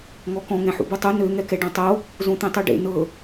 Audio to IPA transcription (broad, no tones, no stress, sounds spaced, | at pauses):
ŋ ɔ k ɔ̃ ŋ ɛ̃ ħ ṵ b u tˤ u n ø ŋ ɛ k ɛ ɖ ɔ̃ tˤ o | z õ t̪ ẽ tˤ o ɖ ḛ n ɤ